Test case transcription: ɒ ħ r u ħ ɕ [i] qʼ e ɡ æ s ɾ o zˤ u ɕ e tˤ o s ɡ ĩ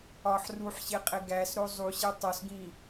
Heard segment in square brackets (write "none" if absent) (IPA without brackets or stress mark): e